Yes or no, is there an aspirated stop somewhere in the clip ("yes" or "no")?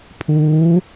yes